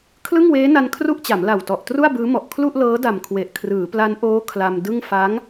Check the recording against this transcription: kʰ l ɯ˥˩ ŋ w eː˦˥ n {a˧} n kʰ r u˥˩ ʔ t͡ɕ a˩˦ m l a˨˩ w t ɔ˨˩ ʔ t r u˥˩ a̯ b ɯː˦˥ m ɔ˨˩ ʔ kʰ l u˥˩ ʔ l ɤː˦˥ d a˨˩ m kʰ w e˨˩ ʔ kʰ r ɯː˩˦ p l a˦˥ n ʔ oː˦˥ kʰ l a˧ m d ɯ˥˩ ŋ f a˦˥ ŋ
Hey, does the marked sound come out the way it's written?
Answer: yes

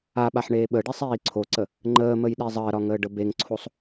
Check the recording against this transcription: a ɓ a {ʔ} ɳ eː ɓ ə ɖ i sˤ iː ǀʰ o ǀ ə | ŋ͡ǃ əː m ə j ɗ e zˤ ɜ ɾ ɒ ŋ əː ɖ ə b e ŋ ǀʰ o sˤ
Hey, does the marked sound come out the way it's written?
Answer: no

